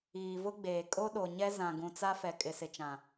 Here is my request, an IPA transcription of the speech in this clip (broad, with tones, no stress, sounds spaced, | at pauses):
iː˨ v ʊ˦ ɡ͡b eː˨ kʼ o˦ ɗ o˨ ɲ ɛ˦ z ã˨ ɡ ũ˨ t͡s a˦ f ɛ˨ kʼ ɪ˨ s ɪ˨ t͡ʃ ã˨